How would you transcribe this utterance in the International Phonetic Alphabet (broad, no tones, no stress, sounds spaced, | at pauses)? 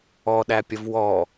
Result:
ɔ ɗ æ pʲ ə v w ɔ